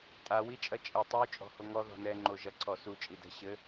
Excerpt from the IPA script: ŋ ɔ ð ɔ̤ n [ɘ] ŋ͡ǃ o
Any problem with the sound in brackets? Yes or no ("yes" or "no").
yes